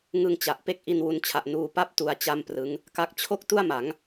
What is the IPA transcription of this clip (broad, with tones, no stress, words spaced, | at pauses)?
ŋɯ˧ŋt͡ɕa˨˩ʔ pe˥˩k̚ʔi˧nwu˧nt͡ɕʰa˨˩ʔ nuː˧pa˥˩p̚ tu˧a̯ t͡ɕa˥˩mprɯ˦˥ŋ | ka˦˥k̚ t͡ɕʰo˥˩k̚ tu˥˩a̯ma˩˦ŋ